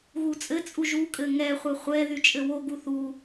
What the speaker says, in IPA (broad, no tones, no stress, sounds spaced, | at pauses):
ɣ u t͡sʼ ɘ t͡sʼ u ʒ u kʼ ɘ ŋ ɛ χʷ ɛ χʷ ɛ ð y t͡ʃʼ ɘ w o ɡ u θ u